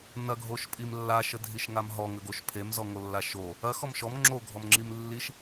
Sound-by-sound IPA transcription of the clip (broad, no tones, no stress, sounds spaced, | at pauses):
n ɐ ɡʱ o ʃ pʼ i m lː a ʃ ə dʱ i ʃ ŋ a m ɦ ɔ ŋ ə ɡ o ʃ pʰ e m z ɔ ŋ o lː a ʃ o | ɐ x ɔ m ʃ ɔ m ŋ͡ǁ o ɡʱ ɔ m ŋ͡ǁ i m lː i ʃ